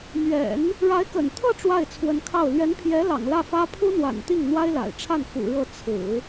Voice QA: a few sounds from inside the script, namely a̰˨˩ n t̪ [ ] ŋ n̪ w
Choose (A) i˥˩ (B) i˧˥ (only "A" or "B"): A